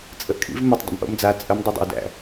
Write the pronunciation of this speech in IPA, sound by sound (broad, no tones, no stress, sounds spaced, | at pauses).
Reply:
t͡sʼ ə ʔ kʼ ḭ v m ə tˤ dˤ o̰ m ʔ o̰ m d͡z a t͡sʼ ə m dˤ i dˤ o̰ w d æ̰